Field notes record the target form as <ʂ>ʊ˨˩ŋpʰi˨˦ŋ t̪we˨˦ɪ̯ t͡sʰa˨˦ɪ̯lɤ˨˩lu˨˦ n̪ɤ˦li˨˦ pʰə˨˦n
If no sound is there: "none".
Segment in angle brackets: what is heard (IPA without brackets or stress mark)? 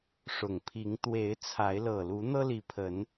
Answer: ʂ